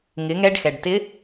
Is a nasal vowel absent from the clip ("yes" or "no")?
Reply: yes